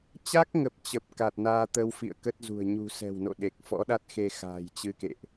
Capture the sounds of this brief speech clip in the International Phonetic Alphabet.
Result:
t͡ɕ a˦˥ k̚ ŋ ə˨˩ p̚ t͡ɕ ə˨˩ p̚ k a˨˩ t̚ n aː˧ t̪ ə˧ w f ḭ˧˨ ə̯ k ə˦˥ t̚ z ṳ˨˩ ə̯ ɲ ṳ˨˩ s ɛ̤˨˩ w n o̰˧˨ ɗ e˨˩ k̚ f ɔ̰˧˥ ɗ a˦˥ t̚ x e˧ x a̤ː˨˩ j t͡ɕ ɨ˧ k ḛ˧˨ ʔ

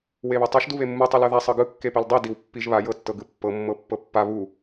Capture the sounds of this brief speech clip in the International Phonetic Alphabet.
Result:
w e β u tˤ ɤ ʃ d u β e mː ɯ tˤ ɯ l ɤ ð a sˤ ɤ ɡ ɯ kː e p e l dˤ i d i w pː i ʒ β a j ɤ tː ɤ ɡ ɯ pː ɤ mː ɤ pː ɤ pː a β u

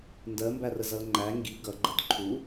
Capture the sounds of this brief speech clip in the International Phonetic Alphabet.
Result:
n d ɜ m b æ r ə z ʌ l ŋ͡ǃ æ ŋ ɡ i ɡ ʌ ɡ͡ǃ ə d ǃʰ u

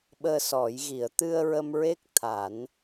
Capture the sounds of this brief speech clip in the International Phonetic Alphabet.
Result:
ɓ əː˧ s ɔ˨˩˦ j ɣ i˨˩˦ ə̯ t̪ ɨ˧ ə̯ ɹ ə˧ m ɹ e˦˥ k̚ t̪ʰ a˨˩˦ n

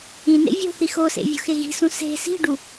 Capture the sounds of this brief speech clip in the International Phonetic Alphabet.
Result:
ĩ n ḛ vʲ o̤ θ i x o s ḛ vʲ o̤ x e ɣ i̤ s ũ s e̤ s i̤ ɖ u

